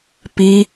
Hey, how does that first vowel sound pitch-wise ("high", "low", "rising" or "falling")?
high